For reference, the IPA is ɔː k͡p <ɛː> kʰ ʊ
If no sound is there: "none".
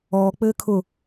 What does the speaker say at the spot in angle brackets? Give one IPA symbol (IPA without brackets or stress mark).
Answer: ɘː